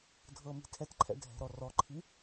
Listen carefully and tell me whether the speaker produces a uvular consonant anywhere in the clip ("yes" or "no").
no